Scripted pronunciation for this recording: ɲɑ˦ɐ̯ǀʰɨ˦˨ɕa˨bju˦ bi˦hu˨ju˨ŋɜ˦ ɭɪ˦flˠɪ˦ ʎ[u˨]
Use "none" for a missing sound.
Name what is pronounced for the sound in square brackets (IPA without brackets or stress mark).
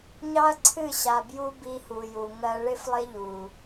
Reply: u˨